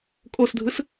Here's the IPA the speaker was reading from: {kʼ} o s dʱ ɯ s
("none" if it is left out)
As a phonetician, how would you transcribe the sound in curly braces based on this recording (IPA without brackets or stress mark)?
kʼ